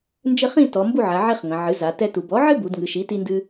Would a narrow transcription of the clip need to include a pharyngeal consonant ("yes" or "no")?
yes